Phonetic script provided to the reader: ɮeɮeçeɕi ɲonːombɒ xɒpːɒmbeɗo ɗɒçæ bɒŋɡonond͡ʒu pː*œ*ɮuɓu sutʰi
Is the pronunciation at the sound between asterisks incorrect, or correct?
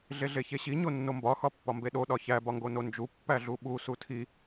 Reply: incorrect